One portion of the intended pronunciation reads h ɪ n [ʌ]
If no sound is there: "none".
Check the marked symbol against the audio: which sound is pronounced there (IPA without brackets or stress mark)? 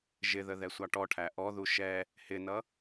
ʌ